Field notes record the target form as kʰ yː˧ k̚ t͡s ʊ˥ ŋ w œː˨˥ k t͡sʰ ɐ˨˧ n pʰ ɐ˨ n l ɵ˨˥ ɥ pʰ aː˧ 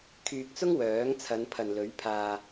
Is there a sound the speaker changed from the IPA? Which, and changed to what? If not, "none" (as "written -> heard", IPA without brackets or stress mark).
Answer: k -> ŋ